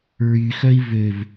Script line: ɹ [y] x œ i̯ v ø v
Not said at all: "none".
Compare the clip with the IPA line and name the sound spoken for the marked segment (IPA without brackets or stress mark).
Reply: y